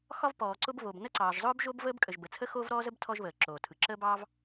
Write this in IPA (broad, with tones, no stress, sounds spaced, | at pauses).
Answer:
x ɒ˥ v p ɔː˩ ǀ ʊ˥ b β o˩ b n ə˥ ǀ ɑː˩ ʒ zˤ ʊː˥ b ʒ o˥ b v əː˥ b kʼ ə˩ ʒ b ə˩ t͡sʰ ə˥ x oː˥ v ɾ ɔː˥ z ə˥ b tʰ ɔ˥ ʒ β əː˩ ǁ oː˩ tʰ ɯ˩ ǁ əː˥ b ɑː˥ v